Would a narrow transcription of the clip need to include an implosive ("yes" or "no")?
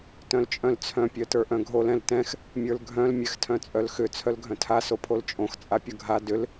no